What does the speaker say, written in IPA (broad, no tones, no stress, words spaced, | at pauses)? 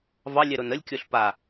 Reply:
vɑlʲɛɾon əlʲkʲoɬ pa